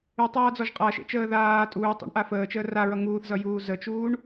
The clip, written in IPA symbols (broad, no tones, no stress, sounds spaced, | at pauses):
y tˤ aː d͡z ɔ ʒ qʼ a ʃ ḛ t͡ʃ əː ð aː tʼ uː tˤ ḛ ɳ ʔ a f əː t͡ʃ əː r a ɹ ʌ ŋ uː θ z ʌ j uː z ə t͡ʃ uː ɳ